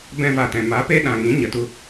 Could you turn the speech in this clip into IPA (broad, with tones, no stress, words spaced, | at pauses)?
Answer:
bɛ̃˦va˨tɛ̃˨ ma˨˦pe˦ɗã˨ŋĩ˨˦ ɲə˨tu˦